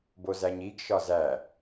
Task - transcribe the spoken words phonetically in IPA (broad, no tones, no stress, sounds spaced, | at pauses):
b o z æ ɲ i ɡ ʃ ɒ z æ